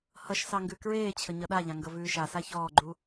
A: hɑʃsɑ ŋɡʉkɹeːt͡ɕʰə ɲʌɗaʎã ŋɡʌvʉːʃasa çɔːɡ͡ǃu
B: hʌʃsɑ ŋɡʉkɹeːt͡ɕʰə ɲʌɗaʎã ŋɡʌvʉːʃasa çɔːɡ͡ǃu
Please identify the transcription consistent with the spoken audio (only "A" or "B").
B